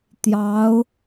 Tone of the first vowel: rising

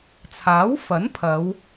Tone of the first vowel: rising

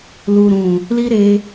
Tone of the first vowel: low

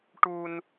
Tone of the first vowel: high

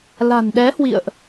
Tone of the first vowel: low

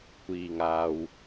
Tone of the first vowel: low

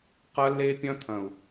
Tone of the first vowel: high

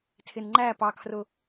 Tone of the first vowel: low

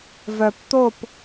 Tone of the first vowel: low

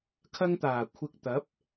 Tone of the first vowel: high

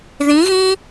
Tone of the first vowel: rising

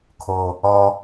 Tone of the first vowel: low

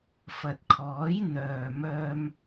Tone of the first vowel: low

